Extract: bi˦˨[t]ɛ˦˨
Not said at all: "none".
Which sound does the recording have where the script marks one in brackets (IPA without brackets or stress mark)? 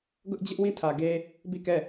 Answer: k